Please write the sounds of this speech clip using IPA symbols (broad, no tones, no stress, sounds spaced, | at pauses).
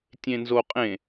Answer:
tʲ ẽ n z o qʼ ẽ